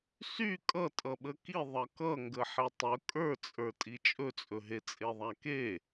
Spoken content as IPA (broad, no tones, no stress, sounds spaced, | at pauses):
s y kʼ ʌ tʼ ʌ ɓ ə k i ðˤ ʌ k ʌ ŋ ɡ ə ħ e tˤ ɵ kʼ ə˞ t͡sʼ ə˞ tʼ i t͡ʃʼ ɵ t͡sʼ ɵ ɦ e t͡sʼ e ðˤ a k e